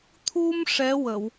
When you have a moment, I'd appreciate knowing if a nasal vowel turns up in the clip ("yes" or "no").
no